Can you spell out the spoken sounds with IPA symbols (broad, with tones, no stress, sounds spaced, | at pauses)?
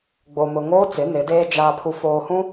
ɡ͡b o˨ m ʊ˨ ŋ oː˦ t͡s ɪ˨˦ n ɪ˨˦ d eː˦ d͡ʒ aː˨ pʰ u˨ f oː˨ h ũ˦